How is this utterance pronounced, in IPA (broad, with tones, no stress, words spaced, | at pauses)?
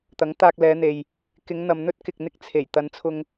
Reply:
t̪ɐ˨˥ŋt̪aː˧k̚ lɛː˨˧n̪e˨j | kɪ˨˧ŋn̪ɐ˨mn̪ɵ˥t̚ kɪ˨k̚n̪ɪ˥k̚ t͡sʰe˨˩j t̪ɐ˨˧nt͡sʰʊ˧ŋ